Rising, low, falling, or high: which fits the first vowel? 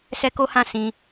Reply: high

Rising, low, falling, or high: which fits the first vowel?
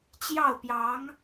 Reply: falling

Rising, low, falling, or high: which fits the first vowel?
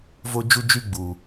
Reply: high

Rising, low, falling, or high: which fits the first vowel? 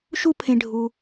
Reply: high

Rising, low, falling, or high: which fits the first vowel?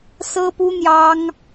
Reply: high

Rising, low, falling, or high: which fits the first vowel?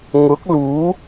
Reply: rising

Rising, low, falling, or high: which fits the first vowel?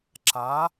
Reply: rising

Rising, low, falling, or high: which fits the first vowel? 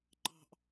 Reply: high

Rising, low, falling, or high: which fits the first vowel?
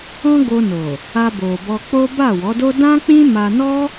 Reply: high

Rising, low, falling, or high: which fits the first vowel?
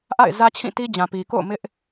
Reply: falling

